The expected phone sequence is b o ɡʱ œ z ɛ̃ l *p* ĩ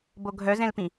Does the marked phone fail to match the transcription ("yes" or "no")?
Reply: no